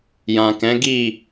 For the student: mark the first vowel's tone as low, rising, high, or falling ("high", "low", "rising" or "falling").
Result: low